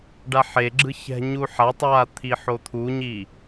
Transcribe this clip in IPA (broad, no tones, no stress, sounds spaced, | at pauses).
ɖ a ħ e ɡ͡ǁ ɯ ç ɛ̤ ɲ u ħ a tˤ w a t̪ʰ i ħ o t̪ʰ u ɲ i